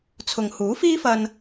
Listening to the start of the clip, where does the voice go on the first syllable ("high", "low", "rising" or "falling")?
low